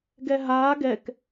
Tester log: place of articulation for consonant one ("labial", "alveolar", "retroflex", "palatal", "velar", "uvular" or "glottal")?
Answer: velar